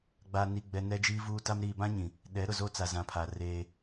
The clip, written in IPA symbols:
ɡ͡b a˨ n i˨ ɡ͡b ɛ˨ n ɛ˦ d͡ʒ iː˦ v uː˦ t a˦ m ɾ iː˨ b ã˦ ɲ ĩ˨ | ɗ ɛ˨˦ ɾ ʊ˨ z o˦ t͡s a˨ z ã˨ pʰ a˨ r eː˦

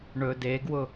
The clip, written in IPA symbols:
ɳ ɵ d e ɡ w ʊ

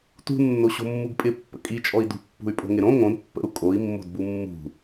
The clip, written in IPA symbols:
t ṳ nː o ɕ o̤ mː u ɡ pʼ ɪ pː ə̰ kʼ i t͡ʃʼ ɔ i̯ d ṳ pː ṳ y̯ pʼ o̤ ŋ ɪ ɾ õ ŋ õ d pː ə̰ u̯ kʼ o i̯ mː o̤ d b u mː ṳ

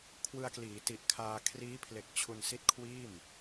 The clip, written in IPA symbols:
kʰ w ɯ˧ a̯ k l iː˩˦ t i˨˩ ʔ kʰ aː˧ kʰ r iː˦˥ pʰ l e˨˩ k̚ t͡ɕʰ u˧ n s i˦˥ t̚ kʰ w iː˥˩ m

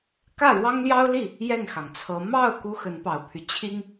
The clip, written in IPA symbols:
k ä˥˩ ɻ w ɑ˥ ŋ l j ɑ˥ ʊ̯ l i˥˩ | j ɛ˥˩ n x ɑ˩ ŋ t͡sʰ ɤ˧˥ m ɑ˥˩ ʊ̯ k u˥ x ə˧˥ n p ɑ˨˩ ʊ̯ pʰ y˦ t͡ɕʰ i˥ ŋ

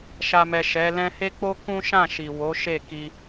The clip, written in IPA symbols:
ʃ a˨ m ɛ˨ ʃ ɛ˨˦ l ɛ̃˦ h e˦ k͡p o˦ k ũ˦ ʃ ã˦˨ ʃ i˨ w o˨˦ ʃ e˦˨ k i˧

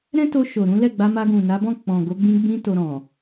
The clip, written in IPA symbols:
ɾ ɛ̃˦ t o˧ ʃ o˨ ɾ ũ˨˦ l ɛ˦˨ ɡ͡b a˧ m a˧ ɡ ũ˨ n a˨˦ b ɔ̃˦˨ k͡p ɔ̃˨ ɡ o˨˦ ɡ͡b ĩ˧ ɡ͡b ĩ˧ t o˧ ɾ ɔ̃˨

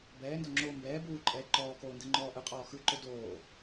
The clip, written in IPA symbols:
b ɛː n d ɔ ŋ͡ǁ oː m b ɛː b uː ǃʼ ɛː ǃ ɔː k oː n d ɯ ŋ͡ǃ ɔː ʔ ɯ qʼ ɔː x ɯ ǃ ɵ d oː

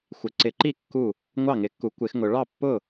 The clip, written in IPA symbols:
xʷ ɪ˨˩˦ ǀ ɪ˨˩˦ ǃ i˥˩ kː u˥˩ | ŋʷ ɑ˥˩ ŋ ɪ˨˩˦ kː u˨˩˦ kʷ ɪ˨˩˦ x ŋ ʊ˨˩˦ ɭ ɑ˥˩ pː ʊ˥˩

